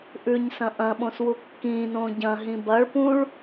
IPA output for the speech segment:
ʔ ʉ ɲ s ɐ̃ ʔ ɐ̃ ɓ õ s w u kː ĩː n õː ɟ ɐ̃ ɦ ĩ b ɐ ɭ p ũ ɭ

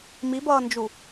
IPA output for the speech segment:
m i b ʌː n d͡ʒ u

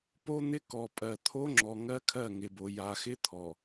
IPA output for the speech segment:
p o˦ n̪ ɪ˦ k ɔ˨ pʼ ɜ˨ t̪ʰ o˦ ŋ͡ǁ ɔ˨ ŋ ɜ˦ kʰ ɜ˦˨ ŋ ɪ˨ b o˨ j a˨ x ɪ˦ t̪ʰ ɔ˨

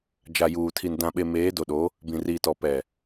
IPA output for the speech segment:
d͡ʒ a˨ j uː˨ tʰ i˨ n d ã˨ ɓ e˨ m eː˨˦ d o˨ ɗ o˨˦ | b ĩ˨ r iː˨ t ɔ˨ p ɛ˨

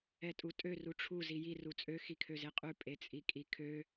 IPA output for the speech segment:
ɛ tʼ u tʼ ø r u ʈ͡ʂʰ u z i j i r u t͡sʼ ø x i kʰ ø z e qʼ ʉ pʼ e t͡sʼ i kʼ i kʰ ø

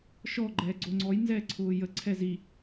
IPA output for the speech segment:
ʃ ɔ ɡ͡ǃ ɛː ɡ͡ǀ o ŋ͡ǀ ɔ j n z ɛː ǀʰ ʊː j ə ǀʰ ɛ z i

